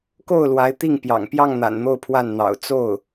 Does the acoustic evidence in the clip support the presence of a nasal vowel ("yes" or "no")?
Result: no